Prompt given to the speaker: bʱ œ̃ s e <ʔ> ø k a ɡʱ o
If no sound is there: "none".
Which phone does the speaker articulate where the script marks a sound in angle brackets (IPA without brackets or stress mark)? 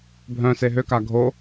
ɦ